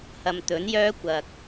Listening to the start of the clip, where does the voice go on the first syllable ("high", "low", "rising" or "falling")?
low